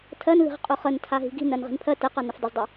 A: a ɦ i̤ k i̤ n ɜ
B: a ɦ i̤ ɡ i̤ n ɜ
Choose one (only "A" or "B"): B